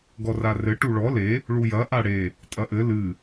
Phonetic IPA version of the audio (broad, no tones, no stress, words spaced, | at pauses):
ɡɔrarɘ ʈuɭɔ le | ɭujɐ ʔaɽe | tʼɐʔɘ lɨ